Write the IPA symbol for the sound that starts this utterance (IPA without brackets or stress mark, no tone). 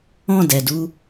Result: ɔ̃